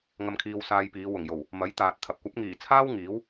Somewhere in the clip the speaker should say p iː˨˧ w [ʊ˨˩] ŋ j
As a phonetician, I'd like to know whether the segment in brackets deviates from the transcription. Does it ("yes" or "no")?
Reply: no